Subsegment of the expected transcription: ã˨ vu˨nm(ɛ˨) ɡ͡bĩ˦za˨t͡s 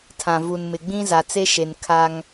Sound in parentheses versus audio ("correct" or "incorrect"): incorrect